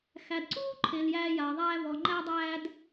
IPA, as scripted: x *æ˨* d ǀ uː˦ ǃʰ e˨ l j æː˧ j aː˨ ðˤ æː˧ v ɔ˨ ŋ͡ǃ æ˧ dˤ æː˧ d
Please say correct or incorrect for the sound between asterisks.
correct